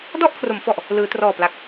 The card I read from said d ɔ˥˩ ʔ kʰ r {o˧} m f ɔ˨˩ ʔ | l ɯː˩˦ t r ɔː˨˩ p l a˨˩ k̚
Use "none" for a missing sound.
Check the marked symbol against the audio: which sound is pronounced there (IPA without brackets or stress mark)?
o˩˦